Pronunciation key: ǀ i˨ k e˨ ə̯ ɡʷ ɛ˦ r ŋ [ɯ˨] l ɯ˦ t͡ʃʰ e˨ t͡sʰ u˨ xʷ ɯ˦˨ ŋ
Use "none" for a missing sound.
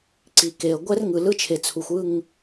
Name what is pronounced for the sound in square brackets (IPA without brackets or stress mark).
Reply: ɯ˨